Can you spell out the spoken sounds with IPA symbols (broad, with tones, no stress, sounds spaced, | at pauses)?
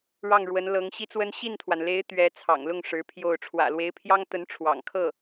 ɻ ɑ˥˩ ŋ ɻ w ə˧˥ n l ɤ˧˥ ŋ ɕ i˥ t͡s w ə˥ n ɕ i˥˩ n t̪ʰ w a˩ n l e˧˥ ɪ̯ t̪ ɥ ɛ˧˥ t͡sʰ ɑ̰˨˩ ŋ l ʊ˥˩ ŋ ʂ ɻ̩˧˥ pʰ j o˥˩ ʊ̯ ʈ͡ʂʰ w ä̰˨˩ l w e˧˥ ɪ̯ pʰ j ɑ˥ ŋ t̪ ə˧˥ n ʈ͡ʂʰ w ɑ̰˨˩ ŋ kʰ ɤ˥˩